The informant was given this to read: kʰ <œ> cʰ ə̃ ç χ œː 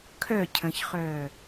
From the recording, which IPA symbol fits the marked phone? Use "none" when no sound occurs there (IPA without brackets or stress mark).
œ